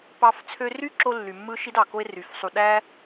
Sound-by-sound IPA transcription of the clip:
p ɑ˧ f t͡sʰ ø˧ r y˦ ǁ o˧ lː y˨ mː ɯ˦ ʃ i˦ d ɑ˨ k o˦ e̯ r y˨˦ f sˤ u˧ ɗ æ˦

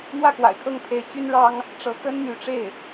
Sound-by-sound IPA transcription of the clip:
n̪ w ä˥˩ k w a̰˨˩ ɪ̯ kʰ ɤ˥˩ ŋ t̪ʰ e˧˥ ɪ̯ t͡ɕ y˥ n ɻ ɑ˥ ŋ | ʈ͡ʂ ɤ˧˥ k ə˥ n m y˧˥ ʈ͡ʂ e˥˩ ɪ̯

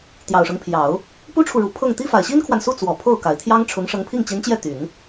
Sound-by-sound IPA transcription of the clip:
t̪ j ɑ˨˩ ʊ̯ ʂ ɤ˦ ŋ pʰ j ɑ˨˩˦ ʊ̯ | p u˥ ʈ͡ʂʰ u˨ ɻ u˨˩ pʰ ɤ˥˩ ŋ t̪ i˥ f a˨˩ ɪ̯ ɕ i˥ n kʰ w a˨ n s u˥˩ t͡s w ɔ˨˩ pʰ o˥˩ ʊ̯ k a˨˩ ɪ̯ t̪ʰ j ɑ˥ ŋ ʈ͡ʂʰ ʊ˧˥ ŋ ʂ ɤ˧˥ ŋ pʰ i˥˩ ŋ t͡ɕ i˧˥ n t͡ɕ j ɛ˥˩ t̪ y˨˩˦ n

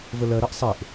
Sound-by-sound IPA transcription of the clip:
v ə l ɜ ɾ ɜ ʔ sˤ e ʔ

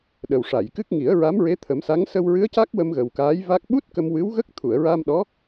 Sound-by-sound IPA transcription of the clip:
ɗ ə˨˩ w ʂ a˨˩˨ j k ɨ˦˥ k̚ ŋ i˨˩˦ ə̯ ɹ a˧˥ m ɹ e˧˥ t̪ʰ ə˨˩˦ m s a˧˥ ŋ s ə˧ w ɹ ɨ˧˥ ə̯ c a˦˥ k̚ w ə˧ m ɣ ə˨˩ w k aː˧˥ j v a˦˥ k̚ ɓ u˦˥ t̚ k ə˧ m w ɨ˧˥ w ɣ ə˦˥ k̚ t̪ʰ u˨˩˨ ə̯ ɹ a˧ m ɗ ɔ˧˥

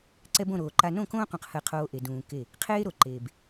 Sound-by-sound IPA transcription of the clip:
ǀ ɛ˦ b õ˦˨ ɾ oː˨ ǃ a˦ n õ˦˨ k õː˦ q ũ˨ q h ɜ˦˨ qʰ oː˦ ʔ e˨ d ũː˨ k e˦˨ | qʰ eː˦ ɾ o˨ ǃ eː˨ b

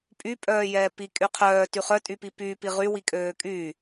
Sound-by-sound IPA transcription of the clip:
pʼ y pʼ œː j ɛː p i kʼ y qʰ œː t y χ œ tʼ y p i p y p i ʁ y w i kʼ øː kʼ yː

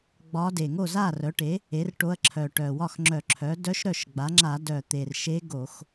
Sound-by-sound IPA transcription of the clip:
ɡ͡b ɒ˧˥ d e˨˩ ŋ o˥˩ z a˥˩ r œ˩˥ ʈ e˩˥ | e˩˥ r ʈ o˧˥ ɐ̯ ǁʰ œ˨˩ ʈ œ˨˩ w ɒ˥˩ x ŋ͡ǁ œ˧˩˧ ǁʰ œ˩˥ d œ˧˥ ʃ ɾ œ˥˩ ʃ ɡ͡b a˩˥ ŋ͡ǁ a˧˩˧ d œ˨˩ t̪ e˨˩ r ʃ e˧˥ ɡ o˧˩˧ x

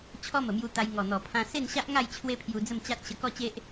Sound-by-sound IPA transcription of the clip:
t͡ɕʰ ɔ˦ m ə˨˩ m j u˧ t̪ a˧ j ŋ ɔ˨˩ n̪ ɔ˨˩ pʰ ã˧ s e˥˧ n ɕ a˦ ʔ ŋ a˥˧ j t͡ɕʰ w e˦ pʰ j u˧ d͡z ə˥˧ m t͡ɕ a˦ t̚ ɕ ə˧ k ɔ˦ t͡ɕ e˦ ʔ

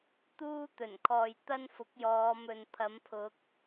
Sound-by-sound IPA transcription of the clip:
t̪ uː˥ t̪ ɵ˨˩ n kʰ ɔː˨ j t̪ ɐ˥ n f ʊ˨˥ k̚ j ɔː˨˧ m ɵ˨ n pʰ ɐ˨˥ m pʰ ʊ˨˥ k̚

